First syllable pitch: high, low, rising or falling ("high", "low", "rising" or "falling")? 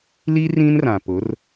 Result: high